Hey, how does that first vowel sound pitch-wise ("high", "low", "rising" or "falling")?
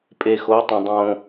low